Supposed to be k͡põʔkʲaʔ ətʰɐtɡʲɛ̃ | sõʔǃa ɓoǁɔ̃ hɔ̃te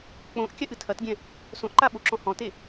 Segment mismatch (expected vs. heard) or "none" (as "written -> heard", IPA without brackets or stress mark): ə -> ɨ